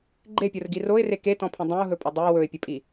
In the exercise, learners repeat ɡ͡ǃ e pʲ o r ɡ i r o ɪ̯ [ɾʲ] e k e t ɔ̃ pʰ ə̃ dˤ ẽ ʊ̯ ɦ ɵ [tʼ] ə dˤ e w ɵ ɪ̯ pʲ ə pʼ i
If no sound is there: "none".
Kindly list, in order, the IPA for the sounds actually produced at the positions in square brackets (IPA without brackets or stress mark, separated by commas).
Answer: r, pʼ